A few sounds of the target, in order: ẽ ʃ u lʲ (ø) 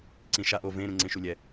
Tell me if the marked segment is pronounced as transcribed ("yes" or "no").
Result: no